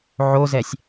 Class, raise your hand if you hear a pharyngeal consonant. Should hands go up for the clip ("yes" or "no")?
yes